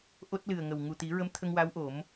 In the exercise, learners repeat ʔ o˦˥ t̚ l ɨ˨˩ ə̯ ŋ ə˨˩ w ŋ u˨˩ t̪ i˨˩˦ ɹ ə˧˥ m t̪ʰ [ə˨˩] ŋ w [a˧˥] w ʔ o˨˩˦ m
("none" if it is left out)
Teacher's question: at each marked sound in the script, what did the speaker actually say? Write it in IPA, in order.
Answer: ə˧, a˧˥

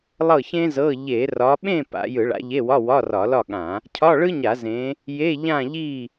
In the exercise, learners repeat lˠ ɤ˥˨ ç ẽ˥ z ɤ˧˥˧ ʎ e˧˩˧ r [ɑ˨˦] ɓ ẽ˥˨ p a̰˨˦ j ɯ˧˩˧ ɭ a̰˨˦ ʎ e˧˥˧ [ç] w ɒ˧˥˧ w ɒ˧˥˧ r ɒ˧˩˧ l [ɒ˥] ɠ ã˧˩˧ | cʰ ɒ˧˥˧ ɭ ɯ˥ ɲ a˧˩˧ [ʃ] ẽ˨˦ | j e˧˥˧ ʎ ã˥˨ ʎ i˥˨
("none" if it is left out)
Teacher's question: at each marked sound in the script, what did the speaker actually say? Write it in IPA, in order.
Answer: ɒ˨˦, none, ɒ˥˨, z

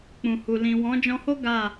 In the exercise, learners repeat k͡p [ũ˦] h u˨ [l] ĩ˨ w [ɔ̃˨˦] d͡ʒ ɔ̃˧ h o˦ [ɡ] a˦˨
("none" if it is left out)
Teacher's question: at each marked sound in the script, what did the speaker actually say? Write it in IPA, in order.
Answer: ũ˨, l, ɔ̃˨˦, ɡ

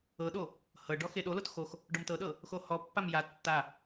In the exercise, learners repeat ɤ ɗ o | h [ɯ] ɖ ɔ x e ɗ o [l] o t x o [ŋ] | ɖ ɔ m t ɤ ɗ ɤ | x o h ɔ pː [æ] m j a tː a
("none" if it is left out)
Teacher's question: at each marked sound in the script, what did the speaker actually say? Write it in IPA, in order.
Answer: ɤ, l, x, a

